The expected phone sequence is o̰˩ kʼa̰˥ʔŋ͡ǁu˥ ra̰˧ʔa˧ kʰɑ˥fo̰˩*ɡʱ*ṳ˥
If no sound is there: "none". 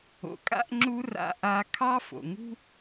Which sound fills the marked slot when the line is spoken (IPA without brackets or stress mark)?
ŋ